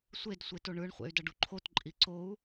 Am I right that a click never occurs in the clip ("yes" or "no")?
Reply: no